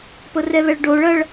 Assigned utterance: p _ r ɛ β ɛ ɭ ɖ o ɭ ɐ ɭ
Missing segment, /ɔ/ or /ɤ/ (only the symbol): ɤ